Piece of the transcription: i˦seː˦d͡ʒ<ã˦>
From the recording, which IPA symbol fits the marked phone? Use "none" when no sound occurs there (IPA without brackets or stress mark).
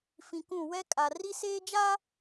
a˦